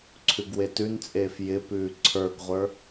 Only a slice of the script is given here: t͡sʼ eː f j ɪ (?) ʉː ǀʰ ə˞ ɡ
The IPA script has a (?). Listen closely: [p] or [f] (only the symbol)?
p